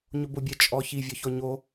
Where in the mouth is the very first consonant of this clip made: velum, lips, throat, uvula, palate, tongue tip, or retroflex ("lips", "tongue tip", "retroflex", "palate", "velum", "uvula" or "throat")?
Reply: palate